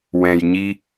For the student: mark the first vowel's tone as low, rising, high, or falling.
low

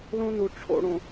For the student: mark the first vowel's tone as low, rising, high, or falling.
high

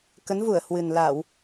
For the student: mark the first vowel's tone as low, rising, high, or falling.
rising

